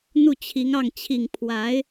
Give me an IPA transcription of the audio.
n̪u˥˩t͡ɕʰi˧˥ŋɑ˥˩ŋ t͡ɕʰi˨˩ŋ pʰwa˧˥ɪ̯

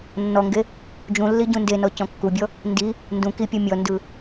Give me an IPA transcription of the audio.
nːɔŋɡe | d͡ʒũlːi ɟũndenɔ cɔ̃kːubʲɔ | ndi | ndũ kipʲɔ mʲɔndɯ

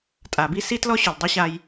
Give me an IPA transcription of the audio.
tʼa˨bi˦si˦tlɔ˦ ɕʊ˨ldˤʊ˦ɕa˧j

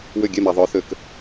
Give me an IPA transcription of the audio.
wʏ˦˨ɡʲɛ˦˨mɛ˨ ðˤœ˨˦θʏ˨k

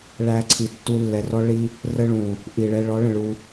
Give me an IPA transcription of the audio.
ɭæ˧ǀʰi˨ tːu˧lːɛ˨rɔ˦ɭi˦ | rə˧ɭũ˨ | ʔi˨ɭɛ˧ ɭɔ˨˦ɭə̃˨ ɭu˧

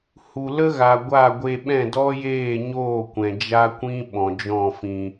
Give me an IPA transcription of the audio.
hu˨lə˦ɣa˨ ɡʷa˦˨ɡʷe˧ɓɛ̃˦˨ dɔ˦jeː˦˨ɲoː˦˨kʷɛ̃˨ d͡ʒa˦kʷĩ˦ ɓɔ̃˨d͡ʒɔ̃˦˨fĩ˧

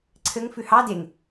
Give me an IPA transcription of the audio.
ǀʰɘŋ fʉhɑ deŋ

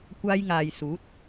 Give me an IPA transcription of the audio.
kʷaː˧j ŋaː˨jsuː˨˥t̚

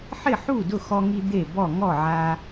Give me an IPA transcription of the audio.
ħɪ˥˨ħu˥˨ dʊ˥˨xɔ˦ŋi˦ d̪e˥˨bɔ˥˨ ŋɔ˥˨ʕa˦

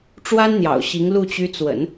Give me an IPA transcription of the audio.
ʈ͡ʂwa˥nn̪jɑ̰˨˩ʊ̯ɕi˧˥ŋlu˥˩ t͡ɕy˧˥t͡swə̰˨˩˦n

